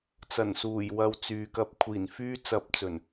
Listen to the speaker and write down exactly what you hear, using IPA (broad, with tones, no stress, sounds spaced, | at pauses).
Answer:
t͡s ɐ˨˩ n s uː˨˩ j w ɐ˨˧ w t͡s yː˨ k ɐ˧ p̚ kʷʰ iː˨˩ n f yː˥ t͡s ɐ˧ p̚ t͡s ɵ˨˩ n